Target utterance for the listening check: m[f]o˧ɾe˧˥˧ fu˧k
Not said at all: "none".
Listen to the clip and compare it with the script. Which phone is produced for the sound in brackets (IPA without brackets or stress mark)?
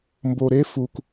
b